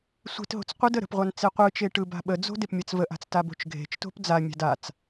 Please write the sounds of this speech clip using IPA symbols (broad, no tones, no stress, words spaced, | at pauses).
sʷe̤tɦo̤t͡s qʷɯd əɾə̤pʁʷan t͡seqʷɯt͡ʃe ʈɯba̤ɓəd͡zo̤ depmʲat͡svəʔa̤t͡s tabo̤t͡ʃɡʱe̤t͡ʃto̤p d͡zamʲa̤d at͡s